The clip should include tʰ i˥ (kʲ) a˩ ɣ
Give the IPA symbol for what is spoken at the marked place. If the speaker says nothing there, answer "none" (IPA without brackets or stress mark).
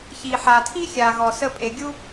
xʲ